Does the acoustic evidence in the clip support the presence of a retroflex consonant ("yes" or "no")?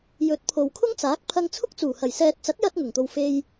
no